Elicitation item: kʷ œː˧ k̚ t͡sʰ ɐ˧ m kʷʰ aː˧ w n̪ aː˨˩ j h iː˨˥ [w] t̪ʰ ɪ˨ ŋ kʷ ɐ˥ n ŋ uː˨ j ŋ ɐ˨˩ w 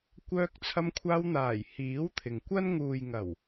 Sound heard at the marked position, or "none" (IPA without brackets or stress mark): w